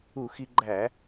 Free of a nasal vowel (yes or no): yes